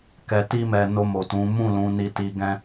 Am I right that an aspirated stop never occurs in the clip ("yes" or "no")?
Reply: yes